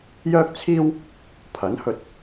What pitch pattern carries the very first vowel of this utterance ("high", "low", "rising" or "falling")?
high